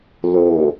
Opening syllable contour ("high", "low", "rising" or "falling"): low